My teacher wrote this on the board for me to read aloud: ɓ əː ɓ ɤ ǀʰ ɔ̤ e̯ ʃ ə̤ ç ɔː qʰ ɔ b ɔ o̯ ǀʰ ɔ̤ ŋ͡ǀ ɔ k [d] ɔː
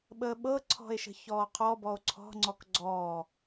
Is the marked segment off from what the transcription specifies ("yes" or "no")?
yes